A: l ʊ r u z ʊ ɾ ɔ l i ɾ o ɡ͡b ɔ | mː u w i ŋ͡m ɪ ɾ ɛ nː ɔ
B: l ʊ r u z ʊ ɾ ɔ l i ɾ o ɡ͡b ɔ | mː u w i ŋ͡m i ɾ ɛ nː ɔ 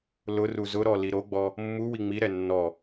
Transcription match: B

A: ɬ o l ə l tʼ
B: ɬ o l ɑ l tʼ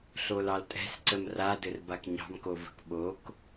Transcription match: B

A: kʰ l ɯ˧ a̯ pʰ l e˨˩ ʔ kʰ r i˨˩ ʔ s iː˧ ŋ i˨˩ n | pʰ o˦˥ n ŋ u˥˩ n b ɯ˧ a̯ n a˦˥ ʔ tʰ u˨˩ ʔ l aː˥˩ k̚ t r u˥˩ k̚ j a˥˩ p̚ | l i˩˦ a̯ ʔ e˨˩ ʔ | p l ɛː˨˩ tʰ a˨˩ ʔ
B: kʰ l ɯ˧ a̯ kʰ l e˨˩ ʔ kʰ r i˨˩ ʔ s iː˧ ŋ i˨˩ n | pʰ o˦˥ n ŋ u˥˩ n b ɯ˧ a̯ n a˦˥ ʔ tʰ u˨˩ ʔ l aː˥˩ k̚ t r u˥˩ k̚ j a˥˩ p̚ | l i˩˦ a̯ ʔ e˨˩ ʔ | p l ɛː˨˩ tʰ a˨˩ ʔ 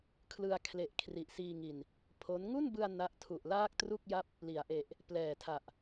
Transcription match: B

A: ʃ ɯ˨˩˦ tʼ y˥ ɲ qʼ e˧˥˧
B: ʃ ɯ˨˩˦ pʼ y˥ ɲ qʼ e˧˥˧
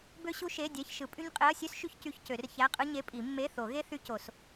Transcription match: B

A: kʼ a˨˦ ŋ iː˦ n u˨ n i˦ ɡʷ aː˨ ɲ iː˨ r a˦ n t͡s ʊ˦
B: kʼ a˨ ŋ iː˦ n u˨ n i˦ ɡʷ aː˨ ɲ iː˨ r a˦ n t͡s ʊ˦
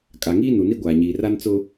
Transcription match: B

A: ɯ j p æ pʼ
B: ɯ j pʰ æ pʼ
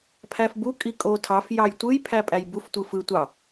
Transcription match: B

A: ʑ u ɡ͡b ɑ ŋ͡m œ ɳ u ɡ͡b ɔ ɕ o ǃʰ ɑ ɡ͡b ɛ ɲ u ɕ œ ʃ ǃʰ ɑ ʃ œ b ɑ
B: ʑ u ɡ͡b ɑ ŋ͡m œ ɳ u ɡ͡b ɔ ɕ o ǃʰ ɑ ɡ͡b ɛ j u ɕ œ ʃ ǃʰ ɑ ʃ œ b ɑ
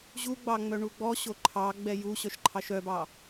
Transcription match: B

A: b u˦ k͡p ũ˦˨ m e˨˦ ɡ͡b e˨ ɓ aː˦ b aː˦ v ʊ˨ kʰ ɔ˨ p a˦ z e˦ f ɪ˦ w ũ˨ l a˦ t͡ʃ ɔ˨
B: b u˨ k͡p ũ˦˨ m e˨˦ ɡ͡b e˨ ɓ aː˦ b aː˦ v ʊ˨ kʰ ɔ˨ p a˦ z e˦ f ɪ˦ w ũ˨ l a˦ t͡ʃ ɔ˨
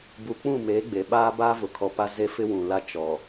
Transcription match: B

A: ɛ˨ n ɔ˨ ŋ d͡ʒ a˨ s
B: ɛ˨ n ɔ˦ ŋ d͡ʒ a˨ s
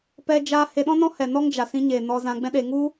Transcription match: B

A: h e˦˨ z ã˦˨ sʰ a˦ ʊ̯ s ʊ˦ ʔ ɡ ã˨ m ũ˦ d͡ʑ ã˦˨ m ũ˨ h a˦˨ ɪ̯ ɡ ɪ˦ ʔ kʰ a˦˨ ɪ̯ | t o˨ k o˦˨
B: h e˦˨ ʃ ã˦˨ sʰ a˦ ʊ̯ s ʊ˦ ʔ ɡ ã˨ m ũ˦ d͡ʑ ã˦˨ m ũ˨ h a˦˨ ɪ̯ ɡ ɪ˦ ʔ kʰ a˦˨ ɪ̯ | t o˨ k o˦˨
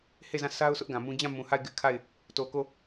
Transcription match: A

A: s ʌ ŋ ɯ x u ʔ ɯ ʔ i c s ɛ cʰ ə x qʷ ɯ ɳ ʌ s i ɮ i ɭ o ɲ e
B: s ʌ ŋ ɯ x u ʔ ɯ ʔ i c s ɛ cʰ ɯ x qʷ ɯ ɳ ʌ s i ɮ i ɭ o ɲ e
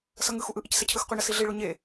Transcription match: B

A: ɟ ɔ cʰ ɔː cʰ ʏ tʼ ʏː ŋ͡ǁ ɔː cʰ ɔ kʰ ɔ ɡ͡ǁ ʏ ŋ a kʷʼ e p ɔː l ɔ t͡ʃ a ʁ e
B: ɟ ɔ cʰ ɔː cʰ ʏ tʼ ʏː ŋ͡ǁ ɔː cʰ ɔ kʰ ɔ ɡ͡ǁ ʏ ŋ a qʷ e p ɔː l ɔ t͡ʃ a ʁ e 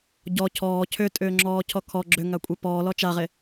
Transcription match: A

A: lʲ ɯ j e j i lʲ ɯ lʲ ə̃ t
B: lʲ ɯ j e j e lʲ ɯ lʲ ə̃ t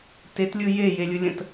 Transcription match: B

